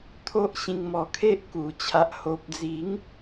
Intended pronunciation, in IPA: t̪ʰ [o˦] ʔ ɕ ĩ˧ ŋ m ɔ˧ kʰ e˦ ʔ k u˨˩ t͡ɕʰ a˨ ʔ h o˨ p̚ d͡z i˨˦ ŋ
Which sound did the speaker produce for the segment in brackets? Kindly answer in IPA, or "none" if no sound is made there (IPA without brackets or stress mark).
o˦